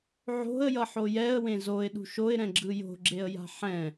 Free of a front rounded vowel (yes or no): yes